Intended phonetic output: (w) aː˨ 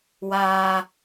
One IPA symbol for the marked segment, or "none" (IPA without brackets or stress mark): w